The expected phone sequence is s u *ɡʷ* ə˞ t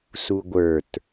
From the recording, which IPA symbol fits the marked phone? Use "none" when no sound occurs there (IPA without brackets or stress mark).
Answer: ɡʷ